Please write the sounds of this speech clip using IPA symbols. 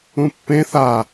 ũpːẽ θa

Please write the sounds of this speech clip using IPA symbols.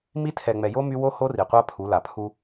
mi˦ tʰɛ˨ŋ͡mɛ˨jo˦ my˦ wo˦ ho˦ri˨qʷa˦pʰu˨˦ la˨pʰu˦

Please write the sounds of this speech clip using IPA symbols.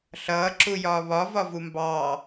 ɬʌː ǁujɒːβɒ vɒvumbɑː

